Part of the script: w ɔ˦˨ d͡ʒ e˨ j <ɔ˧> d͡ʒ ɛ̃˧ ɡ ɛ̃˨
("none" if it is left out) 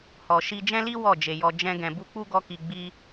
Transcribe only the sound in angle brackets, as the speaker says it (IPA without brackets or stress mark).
ɔ˧